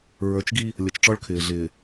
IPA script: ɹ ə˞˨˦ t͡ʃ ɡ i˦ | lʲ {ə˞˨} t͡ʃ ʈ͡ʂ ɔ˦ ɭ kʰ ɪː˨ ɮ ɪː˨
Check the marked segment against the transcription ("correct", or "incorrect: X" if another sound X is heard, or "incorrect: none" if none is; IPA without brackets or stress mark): incorrect: ʌ˨